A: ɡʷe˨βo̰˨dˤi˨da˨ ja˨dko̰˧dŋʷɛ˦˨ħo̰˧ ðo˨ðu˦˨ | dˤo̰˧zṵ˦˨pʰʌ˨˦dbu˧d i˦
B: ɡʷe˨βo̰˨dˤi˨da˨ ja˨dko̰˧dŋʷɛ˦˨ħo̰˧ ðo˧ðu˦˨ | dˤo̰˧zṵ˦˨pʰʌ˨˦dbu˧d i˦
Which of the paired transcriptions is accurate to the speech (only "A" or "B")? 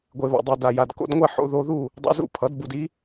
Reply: B